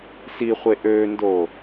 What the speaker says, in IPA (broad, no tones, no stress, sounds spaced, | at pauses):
s i χʷ e ʔ ø n d o